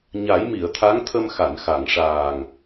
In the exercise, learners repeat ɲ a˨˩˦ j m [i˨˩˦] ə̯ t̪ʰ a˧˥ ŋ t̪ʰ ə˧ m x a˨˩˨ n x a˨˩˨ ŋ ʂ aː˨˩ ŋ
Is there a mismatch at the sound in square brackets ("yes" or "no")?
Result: yes